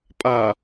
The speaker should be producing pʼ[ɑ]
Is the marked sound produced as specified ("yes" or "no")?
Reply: no